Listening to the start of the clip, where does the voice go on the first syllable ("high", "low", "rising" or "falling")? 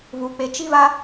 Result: low